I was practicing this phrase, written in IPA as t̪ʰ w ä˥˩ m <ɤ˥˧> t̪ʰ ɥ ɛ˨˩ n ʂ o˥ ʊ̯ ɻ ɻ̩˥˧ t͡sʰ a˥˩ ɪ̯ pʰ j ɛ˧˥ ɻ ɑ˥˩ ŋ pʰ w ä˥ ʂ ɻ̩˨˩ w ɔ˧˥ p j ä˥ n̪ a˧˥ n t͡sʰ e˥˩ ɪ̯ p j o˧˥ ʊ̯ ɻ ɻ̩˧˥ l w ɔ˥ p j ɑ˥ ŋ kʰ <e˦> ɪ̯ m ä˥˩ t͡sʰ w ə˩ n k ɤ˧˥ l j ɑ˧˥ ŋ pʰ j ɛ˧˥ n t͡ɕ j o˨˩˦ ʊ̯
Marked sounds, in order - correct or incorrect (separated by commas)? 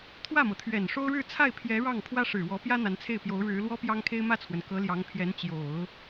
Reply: incorrect, incorrect